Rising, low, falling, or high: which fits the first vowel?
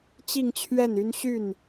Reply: falling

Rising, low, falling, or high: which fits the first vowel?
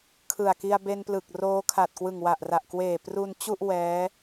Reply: low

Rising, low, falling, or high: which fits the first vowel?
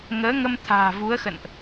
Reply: rising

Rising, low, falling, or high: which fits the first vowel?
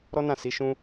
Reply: high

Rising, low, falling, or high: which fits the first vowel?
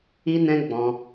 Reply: high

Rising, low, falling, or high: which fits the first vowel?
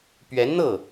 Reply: rising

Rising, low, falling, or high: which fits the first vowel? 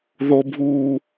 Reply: high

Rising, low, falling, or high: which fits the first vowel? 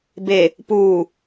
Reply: low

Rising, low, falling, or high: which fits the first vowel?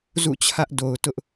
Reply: falling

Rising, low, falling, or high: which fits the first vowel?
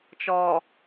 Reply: low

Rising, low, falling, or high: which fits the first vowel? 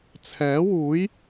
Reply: rising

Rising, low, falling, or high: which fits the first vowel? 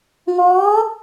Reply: rising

